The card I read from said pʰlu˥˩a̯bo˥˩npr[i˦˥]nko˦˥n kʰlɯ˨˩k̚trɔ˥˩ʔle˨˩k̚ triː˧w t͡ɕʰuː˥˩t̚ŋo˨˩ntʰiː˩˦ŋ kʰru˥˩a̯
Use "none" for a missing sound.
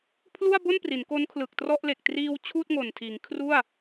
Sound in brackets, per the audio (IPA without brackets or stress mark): i˩˦